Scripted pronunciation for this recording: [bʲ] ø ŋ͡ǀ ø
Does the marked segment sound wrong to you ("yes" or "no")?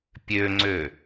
yes